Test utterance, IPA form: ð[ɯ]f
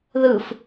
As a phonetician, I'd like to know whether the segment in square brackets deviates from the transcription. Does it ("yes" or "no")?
no